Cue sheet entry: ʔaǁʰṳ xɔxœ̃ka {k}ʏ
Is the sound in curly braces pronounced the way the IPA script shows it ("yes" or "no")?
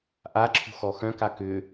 yes